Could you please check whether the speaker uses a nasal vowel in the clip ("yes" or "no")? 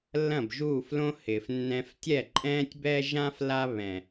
yes